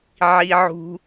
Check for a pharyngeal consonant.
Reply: present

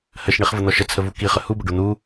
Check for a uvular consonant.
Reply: present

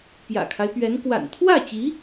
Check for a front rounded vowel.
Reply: absent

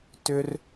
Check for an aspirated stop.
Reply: absent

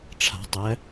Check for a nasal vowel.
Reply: absent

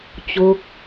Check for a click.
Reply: absent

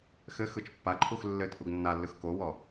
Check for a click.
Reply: present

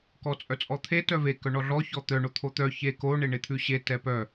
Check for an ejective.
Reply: present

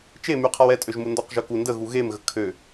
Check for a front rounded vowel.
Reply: present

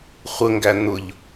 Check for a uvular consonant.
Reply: present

